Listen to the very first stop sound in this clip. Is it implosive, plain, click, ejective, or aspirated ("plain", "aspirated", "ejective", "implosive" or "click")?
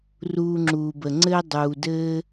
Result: click